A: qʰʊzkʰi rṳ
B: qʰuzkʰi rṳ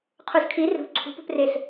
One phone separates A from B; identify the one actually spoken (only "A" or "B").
B